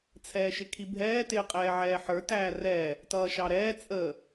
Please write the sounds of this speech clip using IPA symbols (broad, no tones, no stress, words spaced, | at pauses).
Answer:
t͡sʰɛːʃɪkʰibʱɛː tɪːqʼɛːʕɛːħə˞ tæːrɛ | tʌːʃɑɾɛː t͡sʼə